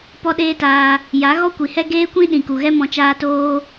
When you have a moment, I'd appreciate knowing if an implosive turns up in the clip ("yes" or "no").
yes